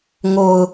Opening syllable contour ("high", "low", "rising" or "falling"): low